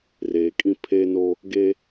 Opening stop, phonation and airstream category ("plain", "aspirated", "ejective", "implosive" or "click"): ejective